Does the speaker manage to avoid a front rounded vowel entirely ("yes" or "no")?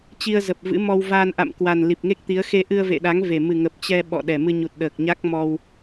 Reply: yes